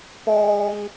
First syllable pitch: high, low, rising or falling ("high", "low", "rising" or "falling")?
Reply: high